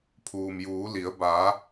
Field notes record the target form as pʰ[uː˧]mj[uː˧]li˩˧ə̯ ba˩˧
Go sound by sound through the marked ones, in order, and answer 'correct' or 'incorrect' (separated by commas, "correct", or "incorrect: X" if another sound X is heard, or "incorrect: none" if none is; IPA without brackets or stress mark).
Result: incorrect: uː˩, incorrect: uː˩˧